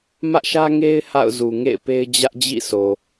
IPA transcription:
mä˦ʔʃä˦ŋe˦ɪ̯ ha̰˦˨ʊ̯zu˨ŋḛ˦˨ɪ̯pe˦ɪ̯ d͡ʑä˦ʔd͡ʑḭ˦˨sʰo˨

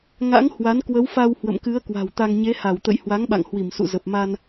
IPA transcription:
ŋa̰˧˥ŋ hwa˨˦nkwə˨˦wfa˧w hwə̰˧˨mkɨ˨˦ə̯ kwa̤˨˩wt̪a˧ŋ ɲe˨˦ha˧˩wt̪ə̰˧˨j hwa˨˦ŋɓa̰˧˨ŋ hwi˧˩msṵ˧˨zə˨˩p̚ma˧n

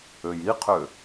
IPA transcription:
øjiqʰø

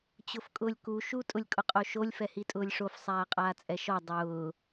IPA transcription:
t͡ɕʊfkʼʊːlʲku ʃu tʼʊlʲkʼʊqʼoʃolʲ fɛhitʼʊːlʲʂof sˤaːqʼaːt͡sʼɛʃɔ dˤʊː

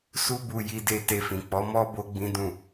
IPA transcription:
su˦bu˧ ji˧de˧ te˧fĩ˨ k͡pɔ˨˦mɔ˦ bo˦ɡ͡bĩ˦dũ˦˨

